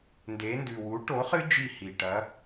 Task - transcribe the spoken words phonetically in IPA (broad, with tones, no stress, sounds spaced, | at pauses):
n d e˩˧ n d ʉ˩ w u˩˥ ʈ o˩˥ χ ɨ˦˥ d͡ʒ i˧˩ h i˩ ʈ ɐ˩˧